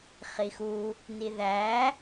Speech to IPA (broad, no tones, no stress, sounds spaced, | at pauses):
χ i x u | n i ð æ